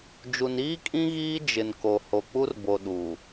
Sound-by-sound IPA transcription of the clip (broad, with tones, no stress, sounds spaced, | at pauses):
d͡ʒ u˨ n iː˦ kʼ ĩ˦ ɣ iː˦ d͡ʒ ɪ˨ n k o˨ h o˨ k͡p u˦ r b o˨ ɗ u˨